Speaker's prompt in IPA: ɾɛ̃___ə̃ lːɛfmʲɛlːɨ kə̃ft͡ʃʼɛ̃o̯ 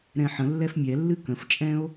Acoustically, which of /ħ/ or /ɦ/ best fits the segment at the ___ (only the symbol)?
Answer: ħ